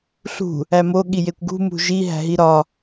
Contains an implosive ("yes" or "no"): yes